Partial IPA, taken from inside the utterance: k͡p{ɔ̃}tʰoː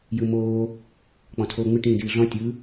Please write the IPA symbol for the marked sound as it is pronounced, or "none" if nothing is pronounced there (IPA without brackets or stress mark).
ɔ̃